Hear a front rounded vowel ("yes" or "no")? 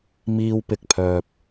yes